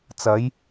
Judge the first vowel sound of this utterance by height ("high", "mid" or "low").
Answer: low